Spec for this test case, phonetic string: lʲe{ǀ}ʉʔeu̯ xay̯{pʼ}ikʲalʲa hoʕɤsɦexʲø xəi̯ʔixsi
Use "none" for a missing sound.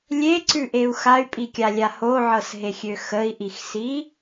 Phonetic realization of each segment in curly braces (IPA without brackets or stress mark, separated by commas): ǀ, pʼ